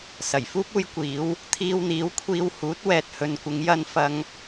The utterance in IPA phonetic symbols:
s ɐ˨˩ j f uː˥ p̚ uː˧ j kʷ iː˨˧ w | t̪ʰ iː˧ w n̪ iː˨˥ w kʷʰ iː˧ w h uː˨˥ t̚ w ɛː˧ t̚ h ɵ˧ n kʷ ɪ˨˧ ŋ j ɐ˧ n f ɐ˧ ŋ

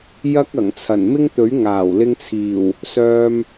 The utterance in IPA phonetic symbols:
j ɐ˥ k̚ ɐ˨˩ ŋ t͡sʰ ɐ˨˩ n m ɪ˥ ŋ t̪ ɵ˨˥ ɥ ŋ aː˨˩ w l ɪ˧ ŋ t͡sʰ iː˨˩ w | s œː˧ m

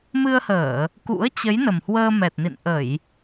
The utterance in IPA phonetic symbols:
m ɨ˧ ə̯ h əː˧˩˨ | k ṵ˧˥ ə̯ t͡ɕ ə˨˦ j n ə˨˩ m h w əː˧ m ɛ˨˩ t̚ n ḭ˧˨ n ʔ ə˧˩˨ j

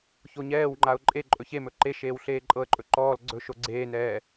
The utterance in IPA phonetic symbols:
ç o ɲ ɛː w ŋ͡ǃ a ʊ̯ ǃʼ e ǃʼ ɵ ç e m ɵ ǃ e ʃ eː w ɬ eː ǃʼ ɤ ə̯ ǃʼ ɵ ǃ ɔː l ɡ͡ǀ ɵ ʃ o ɡ͡ǀ eː n ɛː

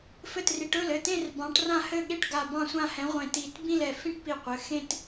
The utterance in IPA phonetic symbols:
f ɘ˥˩ t r i˨˦ ʈ ɵ˥˩ l ɘ˥˩ t ẽ˥˧ r b ɑ̃˨˦ ʈ r ã˥˩ h ɘ˥˧ ɠ e˥˩ ʈ ɡ a˧˩ b ɑ̃˥˧ sʷ ã˥˧ h ɛ̃˨˦ ʁʷ ẽ˧˩ t i˧˩ t b ĩ˥˧ l ɛ˧˩ f ĩ˥˧ ʈ p i˧˩ qʷ ɘ˩˧˩ x ẽ˥˧ t

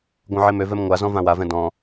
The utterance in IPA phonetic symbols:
ɡʷ œ̃ ʕ e m ø v ɛ m ŋʷ a z ɔ̃ v ã w a v ɛ̃ d ɔ̃

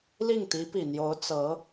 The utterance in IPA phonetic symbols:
l i˥˩ ŋ t̪ i˧˥ p i˨˩ n̪ j o˧˥ ʊ̯ t͡s ɤ˧˥

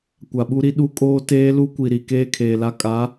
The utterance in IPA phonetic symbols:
kʷ a˨ ɓ u˦ ɾ i˦ ɗ u˦ kʼ oː˦ t eː˦ l u˦ kʷ i˨ ɾ i˨ k eː˦ kʰ eː˨ l a˦ kʼ a˨˦

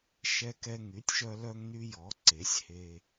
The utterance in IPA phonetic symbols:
ʃ ɛ˧ k ɛ˧ ŋ y˩˥ tʲ ʃ œ˧ l œ˧ ŋ n y˧ j ɔ˩˥ ǀ e˩˥ sʲ h e˧

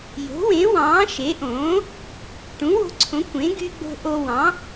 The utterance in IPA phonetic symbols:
j o̤˩˥ w ẽ˩˥ w ɑ̃ː˩˥ ʃ e˩˥ ʔ õː˩˥ | ʈ ũ˩˥ w o̤˧ ǀʰ õ˩˥ kʷ ẽ˩˥ ɡ y˧ ɡ͡b o̤˧ ʔ o˧ w ɑ̃˩˥

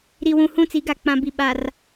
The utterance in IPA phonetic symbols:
ɾ i˨ w ũ˨ h ũ˦˨ t͡s i˨˦ ɡ a˨ k͡p ã˨ b i˨ ɓ a˨ r

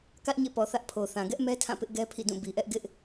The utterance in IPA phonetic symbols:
k ä˦ ʔ ɲ ḛ˦˨ p ɔ˨ θ ä˦ ʔ pʰ o˨ θ ã˨ ɡ ɛ˦ ʔ m ɛ˦ tʰ ã˦˨ p ɪ˦ ʔ ɡ ɛ˦ pʰ ḭ˦˨ d ũ˦˨ b i˨ ʔ ɛ˦ ʔ ɡ ɪ˦ ʔ

